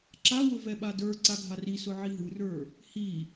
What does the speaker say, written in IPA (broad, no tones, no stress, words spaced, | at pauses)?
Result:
ǁawʊ vɛɓadə˞ ǀaɡʱarisʊ ʕiɦɯrə˞ | hi